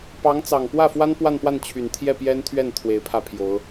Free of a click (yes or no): yes